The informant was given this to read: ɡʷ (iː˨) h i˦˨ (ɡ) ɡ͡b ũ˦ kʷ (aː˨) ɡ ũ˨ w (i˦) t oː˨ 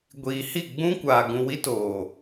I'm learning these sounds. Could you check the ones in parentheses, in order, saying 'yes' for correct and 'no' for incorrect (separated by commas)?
yes, no, yes, yes